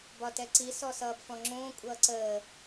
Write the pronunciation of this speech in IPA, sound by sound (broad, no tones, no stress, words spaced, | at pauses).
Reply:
bɒtɛǀi sɔsʌːbfɔ̃ŋ͡ǁõː kʷʼʌːǀəː